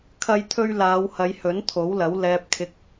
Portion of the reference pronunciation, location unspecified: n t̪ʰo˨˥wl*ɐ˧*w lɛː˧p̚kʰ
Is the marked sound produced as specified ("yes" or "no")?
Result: no